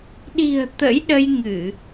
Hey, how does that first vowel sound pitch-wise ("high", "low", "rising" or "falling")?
low